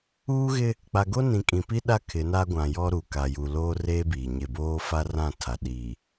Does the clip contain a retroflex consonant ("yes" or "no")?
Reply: no